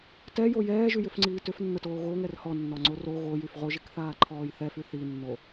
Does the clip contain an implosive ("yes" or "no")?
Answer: no